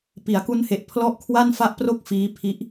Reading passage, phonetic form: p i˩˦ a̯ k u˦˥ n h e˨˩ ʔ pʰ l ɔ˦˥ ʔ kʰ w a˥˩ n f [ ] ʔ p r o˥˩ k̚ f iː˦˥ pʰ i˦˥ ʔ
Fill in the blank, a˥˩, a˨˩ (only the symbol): a˥˩